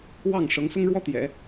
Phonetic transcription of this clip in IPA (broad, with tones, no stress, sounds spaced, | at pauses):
w ɑ˥˩ ŋ ʂ ɤ˧˥ ŋ s ʊ˥ ŋ ɻ w ɔ˥ t̪ j ɛ̰˨˩˦